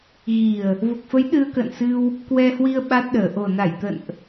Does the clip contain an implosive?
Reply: yes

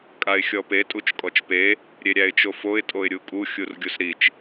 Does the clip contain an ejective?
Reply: yes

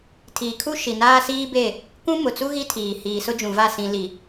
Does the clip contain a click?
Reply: no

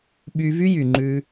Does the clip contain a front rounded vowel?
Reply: yes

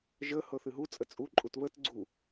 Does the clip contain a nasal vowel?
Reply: no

